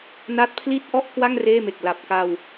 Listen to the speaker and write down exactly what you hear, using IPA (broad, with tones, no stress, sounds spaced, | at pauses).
n a˦˥ t̚ pʰ l i˥˩ t̚ ʔ ɔ˥˩ ʔ k w a˥˩ ŋ r eː˥˩ m e˨˩ k̚ l a˨˩ p̚ k a˧ w